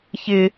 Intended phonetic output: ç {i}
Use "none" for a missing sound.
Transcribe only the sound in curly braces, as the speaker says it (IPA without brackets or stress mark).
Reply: ɪ